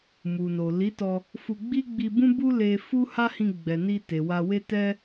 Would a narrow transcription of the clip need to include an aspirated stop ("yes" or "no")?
no